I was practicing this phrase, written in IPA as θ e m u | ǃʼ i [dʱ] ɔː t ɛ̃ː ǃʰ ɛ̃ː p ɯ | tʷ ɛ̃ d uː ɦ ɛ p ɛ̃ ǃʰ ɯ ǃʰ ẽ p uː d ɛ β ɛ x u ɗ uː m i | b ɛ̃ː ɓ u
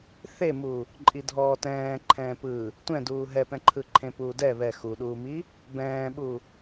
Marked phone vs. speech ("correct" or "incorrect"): correct